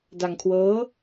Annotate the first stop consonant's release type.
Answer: plain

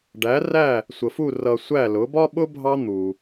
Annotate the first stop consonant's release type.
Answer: plain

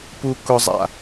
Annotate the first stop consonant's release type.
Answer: plain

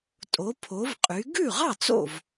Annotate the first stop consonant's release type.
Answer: ejective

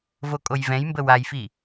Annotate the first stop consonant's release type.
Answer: ejective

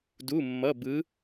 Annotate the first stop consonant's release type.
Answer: plain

